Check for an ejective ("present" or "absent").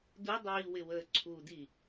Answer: absent